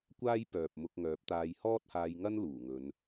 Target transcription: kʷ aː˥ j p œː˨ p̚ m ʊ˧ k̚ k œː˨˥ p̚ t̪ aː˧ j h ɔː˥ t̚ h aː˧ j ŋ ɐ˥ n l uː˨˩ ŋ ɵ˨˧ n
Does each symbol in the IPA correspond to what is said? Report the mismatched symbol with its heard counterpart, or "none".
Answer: k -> ŋ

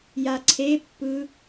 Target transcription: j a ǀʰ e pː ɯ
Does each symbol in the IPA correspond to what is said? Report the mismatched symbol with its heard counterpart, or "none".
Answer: none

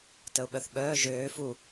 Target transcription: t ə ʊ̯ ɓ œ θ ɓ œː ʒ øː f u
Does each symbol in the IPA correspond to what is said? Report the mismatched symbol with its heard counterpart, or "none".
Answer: none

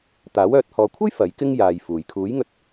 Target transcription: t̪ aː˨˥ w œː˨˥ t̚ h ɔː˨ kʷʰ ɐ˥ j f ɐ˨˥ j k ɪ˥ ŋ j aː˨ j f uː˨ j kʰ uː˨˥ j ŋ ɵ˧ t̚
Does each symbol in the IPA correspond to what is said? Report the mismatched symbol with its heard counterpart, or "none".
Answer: none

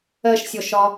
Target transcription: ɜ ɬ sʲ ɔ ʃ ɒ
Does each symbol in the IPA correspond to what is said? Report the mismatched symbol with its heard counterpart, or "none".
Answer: ɬ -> ʃ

